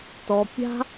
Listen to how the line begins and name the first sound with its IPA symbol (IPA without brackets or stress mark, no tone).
t